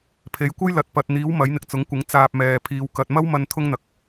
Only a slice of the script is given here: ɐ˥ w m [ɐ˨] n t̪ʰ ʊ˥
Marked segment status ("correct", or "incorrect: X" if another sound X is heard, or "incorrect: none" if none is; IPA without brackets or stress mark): incorrect: ɐ˧